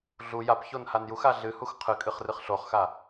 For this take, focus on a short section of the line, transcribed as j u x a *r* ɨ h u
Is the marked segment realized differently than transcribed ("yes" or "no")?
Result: yes